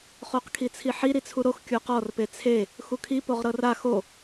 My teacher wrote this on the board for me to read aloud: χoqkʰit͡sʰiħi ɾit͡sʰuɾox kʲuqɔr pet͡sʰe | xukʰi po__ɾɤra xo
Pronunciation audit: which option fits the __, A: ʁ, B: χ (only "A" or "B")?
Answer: A